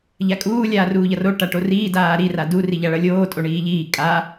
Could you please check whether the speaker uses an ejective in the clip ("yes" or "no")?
yes